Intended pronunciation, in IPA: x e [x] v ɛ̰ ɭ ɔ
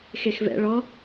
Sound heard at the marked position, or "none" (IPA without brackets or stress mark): x